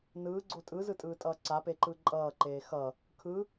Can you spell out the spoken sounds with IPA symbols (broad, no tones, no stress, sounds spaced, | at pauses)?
n ɯː ɡ͡ǀ o tʼ ɯ z ɯ tʼ ɯː tʼ ʌː ǀ a p e ǃ ɯ ǃʼ ʌː ǃ eː x ʌ | kʰ ɯ